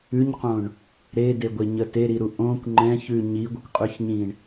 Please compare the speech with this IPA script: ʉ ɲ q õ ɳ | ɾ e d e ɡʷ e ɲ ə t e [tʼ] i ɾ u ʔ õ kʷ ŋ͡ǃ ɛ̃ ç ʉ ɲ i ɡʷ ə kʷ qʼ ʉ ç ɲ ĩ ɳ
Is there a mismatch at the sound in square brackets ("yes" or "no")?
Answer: yes